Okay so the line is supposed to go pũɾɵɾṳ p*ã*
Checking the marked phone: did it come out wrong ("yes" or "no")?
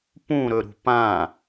no